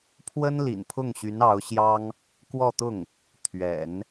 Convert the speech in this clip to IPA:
pʰwə˥n lḭ˨˩npʰʊ˥˩ŋɕy˧˥n ɑ˧˥ʊ̯ɕjɑ˥ŋ | kwɔ˥˧t̪ʊ˥˩ŋ | t̪ʰɥɛ̰˨˩˦n

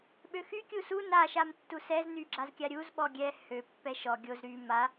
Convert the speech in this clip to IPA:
ɓøxy kʲusu na ʃamtːusɛz nyɡ͡ǁazkʲaɾʲuz ɓɔɡʲɛ hø pːɛʃɔ ɡʲoz ɾy ma

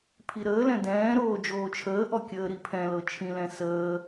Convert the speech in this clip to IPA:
pʰiɾəːlɛ̃ dɛ̃ːɾoː d͡ʒoːt͡ʃʰəːʔɔ kʲəːɾipʰɛ̃lɤ t͡ʃʰĩlɛ̃ səː

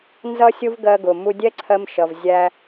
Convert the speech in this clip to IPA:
nzʌ˥sʲʊ˥v ɡɜ˧ɡʊ˩ mu˧dʲɛ˥ǀʰɜ˧mʃʌ˩v zʲæ˧

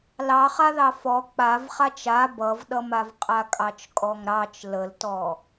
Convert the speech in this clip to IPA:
lɑχaðɑ fɔ k͡pavχat͡ʃ a bʌvɗʌmav qʼakʼɑt͡ʃkʼɔŋɾɑt͡ʃ ləltɔ

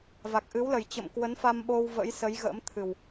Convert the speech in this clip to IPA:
va˨˩k̚ʔɨ˨˦wlə˨˩j t͡ɕə̰˧˨mkwə˨˦n fa˧mɓo˧w və̰˧˥jsə˨˦j ɣə̰ː˧˥mt̪ʰɨ˨˩w

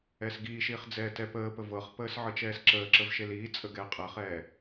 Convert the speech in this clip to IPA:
ɛːsɡiːʃiːχ d͡zɛːtɛpəːpə vɤχpəːs ʕɤt͡ʃɛːsǁəːǁəv ʃeliːt͡sʼə ɡɛːqʼəːχɛː

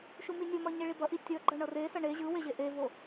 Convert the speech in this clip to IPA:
ʃuminʲomʌ ɲeɭibʌʔi tʲʌɡ͡ǃʌ ɳʌresʌ ɳe ʑɯwe ʑeʔevo

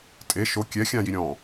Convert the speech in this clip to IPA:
tʼe ʃo kʲɛ xʲãji ɾʲɔ̃

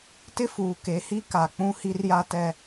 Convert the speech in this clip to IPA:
tɪ˦fuː˨ke˨˦ hi˦ka˨k͡pũ˦ hi˦rja˦tɛ˦

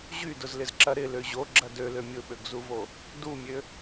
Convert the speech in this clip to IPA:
ʑydʊzlɪzǁɐ ɾɪlø ʑoɡ͡ǁɐ dølø mʲʊɓøɡzuvo | dumʲø

